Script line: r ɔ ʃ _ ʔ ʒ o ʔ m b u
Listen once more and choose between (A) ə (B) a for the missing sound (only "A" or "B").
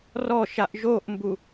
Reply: B